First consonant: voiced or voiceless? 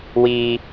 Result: voiced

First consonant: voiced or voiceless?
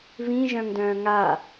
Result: voiced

